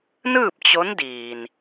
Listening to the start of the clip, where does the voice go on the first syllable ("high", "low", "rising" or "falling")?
falling